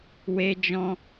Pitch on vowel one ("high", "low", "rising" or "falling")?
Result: high